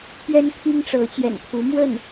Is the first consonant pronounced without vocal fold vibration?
yes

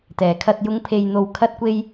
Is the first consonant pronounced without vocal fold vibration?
yes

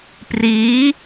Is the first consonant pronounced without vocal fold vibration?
yes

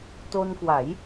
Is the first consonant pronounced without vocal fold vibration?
yes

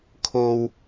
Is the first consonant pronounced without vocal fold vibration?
yes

